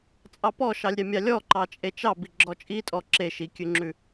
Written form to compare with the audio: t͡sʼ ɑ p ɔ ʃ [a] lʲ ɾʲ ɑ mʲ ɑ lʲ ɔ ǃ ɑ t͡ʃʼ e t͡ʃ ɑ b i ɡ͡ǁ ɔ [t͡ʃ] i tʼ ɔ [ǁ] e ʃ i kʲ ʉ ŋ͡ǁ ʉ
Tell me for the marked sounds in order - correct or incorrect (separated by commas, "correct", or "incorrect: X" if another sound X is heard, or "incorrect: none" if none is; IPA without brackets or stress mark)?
incorrect: ɑ, incorrect: t͡ʃʼ, correct